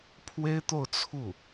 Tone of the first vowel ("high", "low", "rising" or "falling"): high